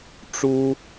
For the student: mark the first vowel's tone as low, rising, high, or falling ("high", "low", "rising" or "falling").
high